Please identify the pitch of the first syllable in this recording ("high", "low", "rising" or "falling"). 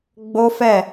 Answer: high